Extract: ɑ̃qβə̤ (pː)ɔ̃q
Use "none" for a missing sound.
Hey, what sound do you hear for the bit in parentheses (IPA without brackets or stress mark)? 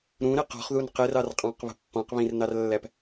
pː